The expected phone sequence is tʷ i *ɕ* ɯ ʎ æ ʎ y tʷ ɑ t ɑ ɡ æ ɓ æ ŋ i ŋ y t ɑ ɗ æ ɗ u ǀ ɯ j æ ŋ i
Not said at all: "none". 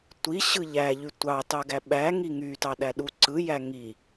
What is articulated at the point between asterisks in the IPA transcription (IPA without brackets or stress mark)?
ɕ